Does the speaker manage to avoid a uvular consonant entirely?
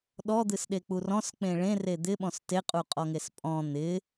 no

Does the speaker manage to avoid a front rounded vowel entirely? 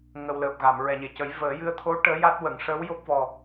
yes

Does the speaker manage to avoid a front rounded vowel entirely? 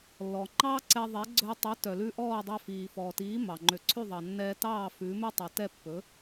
no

